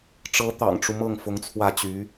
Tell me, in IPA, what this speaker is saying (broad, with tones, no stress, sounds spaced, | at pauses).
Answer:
ʈ͡ʂ ɤ˧˥ t̪ ɑ̰˨˩ ŋ ʈ͡ʂ u˦ m ɤ˥˩ ŋ f ʊ˧˥ ŋ t͡sʰ w ä˥˩ t͡ɕ y˧˥